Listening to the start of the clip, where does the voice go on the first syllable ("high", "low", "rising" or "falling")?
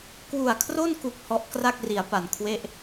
low